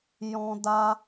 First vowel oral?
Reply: no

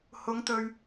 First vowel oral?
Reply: yes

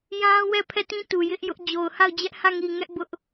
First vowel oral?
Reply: no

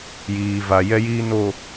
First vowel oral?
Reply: yes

